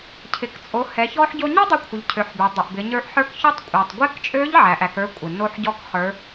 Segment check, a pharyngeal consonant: present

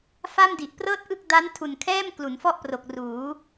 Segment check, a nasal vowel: absent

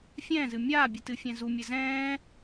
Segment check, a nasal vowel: present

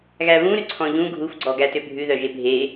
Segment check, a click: present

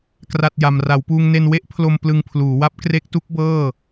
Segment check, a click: absent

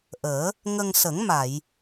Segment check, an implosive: absent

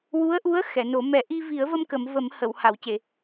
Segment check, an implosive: absent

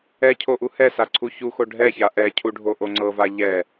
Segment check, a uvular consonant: absent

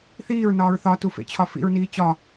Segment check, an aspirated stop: present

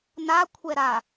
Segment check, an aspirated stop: present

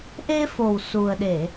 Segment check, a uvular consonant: absent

